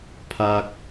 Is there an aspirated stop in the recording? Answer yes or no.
yes